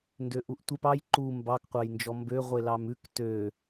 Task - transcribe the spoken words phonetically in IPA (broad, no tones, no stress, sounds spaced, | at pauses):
n d ø ʔ u ʔ tʷ e p ɑ j ǃ u m b ɑ k qʷ ɑ j n d͡ʒ ɔ m b ø ʁʷ e l ɑ m ʉ k t ø